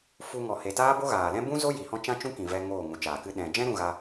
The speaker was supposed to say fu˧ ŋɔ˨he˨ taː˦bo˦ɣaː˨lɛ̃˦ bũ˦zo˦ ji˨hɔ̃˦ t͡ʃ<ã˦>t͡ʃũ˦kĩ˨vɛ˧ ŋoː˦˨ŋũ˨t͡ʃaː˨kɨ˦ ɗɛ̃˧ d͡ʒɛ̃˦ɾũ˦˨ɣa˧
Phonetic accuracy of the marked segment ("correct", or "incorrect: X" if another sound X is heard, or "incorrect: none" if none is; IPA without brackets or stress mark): correct